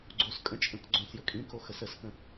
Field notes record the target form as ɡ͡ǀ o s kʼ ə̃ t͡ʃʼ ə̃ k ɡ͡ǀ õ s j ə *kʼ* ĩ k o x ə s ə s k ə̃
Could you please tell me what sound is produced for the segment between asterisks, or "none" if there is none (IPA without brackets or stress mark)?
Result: kʼ